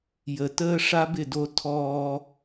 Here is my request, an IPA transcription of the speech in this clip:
j ə˨ t əː˦ ʂ a˦ b ɪ˦˨ d o˦ tʰ ɔː˦

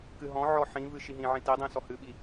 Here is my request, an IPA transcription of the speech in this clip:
k ɨ ɦ ɔ̃ ʕ ɔ ħ ĩ v ɨ ʃ i ɦ ĩ ʕ ĩ t i dˤ ĩ s ɔ h ɨ ɓ i

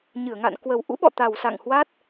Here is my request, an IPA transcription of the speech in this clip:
ɲ ɨ˧˩ ə̯ ŋ a̰˧˨ n k w ə˨˩ w ʔ ṵ˧˥ ɓ ɔ̰˧˨ t̪ a˨˩ w s a̰˧˨ ŋ h w a˦˥ t̚

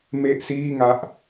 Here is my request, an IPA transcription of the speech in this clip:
m e˥˩ ʔ s iː˥˩ ŋ a˦˥ ʔ

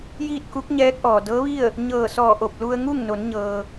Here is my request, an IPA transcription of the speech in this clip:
j iː˥˨ t̚ k u˧˥ k̚ ɲ ɛː˧˥ k̚ ʔ ɔː˩ d ɤː˧˥ ʋ i˥˨ ə̯ | ɲ ɤː˧˩ s ɔː˧˩ ʔ o˧˩ p̚ l u˧ ə̯ ŋ u˥˨ ŋ n o˩˧ n ɲ ɤː˩

